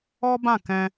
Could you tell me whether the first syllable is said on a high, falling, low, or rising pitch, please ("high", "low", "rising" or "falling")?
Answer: high